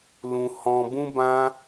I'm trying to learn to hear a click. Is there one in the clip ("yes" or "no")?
no